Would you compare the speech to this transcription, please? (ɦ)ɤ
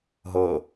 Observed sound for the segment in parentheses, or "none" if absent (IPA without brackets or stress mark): ɦ